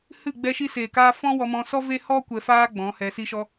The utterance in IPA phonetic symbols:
h ɨ˦˨ ɡ͡b ɛ˧ ʃ i˧ s eː˨ k aː˧ f ɔ̃˦ w ɔ˧ m ɔ̃˧ s ɔ˦ v e˦ h ɔ˦ kʷ ɛ˧ f aː˦ ɡ͡b ɔ̃˨˦ h ɛ˧ s i˦ ʃ ɔ˦

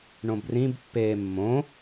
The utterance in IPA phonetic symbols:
ɳ õ b r ĩ b pː eː mː õ

